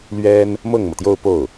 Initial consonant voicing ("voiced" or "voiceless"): voiced